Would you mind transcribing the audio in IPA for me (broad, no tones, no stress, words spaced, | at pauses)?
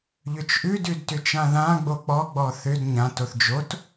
ʎʏt͡ʃʔʉ dʉdtʏt͡ʃãðã ɡ͡bok͡pɔ ɡ͡bɔθʏd ɲãt oθd͡ʒot